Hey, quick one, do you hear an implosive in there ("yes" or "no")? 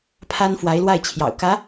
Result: no